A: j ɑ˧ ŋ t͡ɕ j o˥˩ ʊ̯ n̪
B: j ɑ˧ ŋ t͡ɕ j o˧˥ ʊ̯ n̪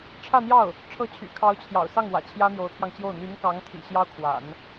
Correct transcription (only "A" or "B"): A